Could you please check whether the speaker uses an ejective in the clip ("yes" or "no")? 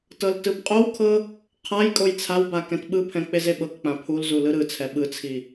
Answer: yes